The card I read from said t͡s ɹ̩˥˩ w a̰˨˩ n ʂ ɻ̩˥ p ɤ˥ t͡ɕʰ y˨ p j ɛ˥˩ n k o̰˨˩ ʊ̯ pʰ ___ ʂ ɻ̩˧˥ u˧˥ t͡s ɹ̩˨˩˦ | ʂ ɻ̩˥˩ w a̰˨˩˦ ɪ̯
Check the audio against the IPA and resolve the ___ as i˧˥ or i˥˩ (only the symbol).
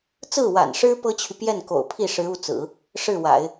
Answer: i˥˩